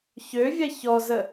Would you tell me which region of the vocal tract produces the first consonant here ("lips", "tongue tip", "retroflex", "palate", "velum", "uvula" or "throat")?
palate